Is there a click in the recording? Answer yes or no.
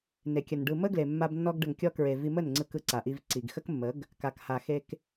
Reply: yes